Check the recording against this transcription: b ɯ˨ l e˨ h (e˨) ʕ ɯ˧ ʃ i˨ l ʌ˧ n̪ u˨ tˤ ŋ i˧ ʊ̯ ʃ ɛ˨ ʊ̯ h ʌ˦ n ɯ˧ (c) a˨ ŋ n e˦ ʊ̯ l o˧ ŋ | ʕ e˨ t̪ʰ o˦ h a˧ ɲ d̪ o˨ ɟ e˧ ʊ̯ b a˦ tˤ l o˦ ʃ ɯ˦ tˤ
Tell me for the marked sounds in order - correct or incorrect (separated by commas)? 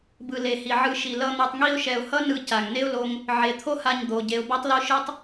incorrect, correct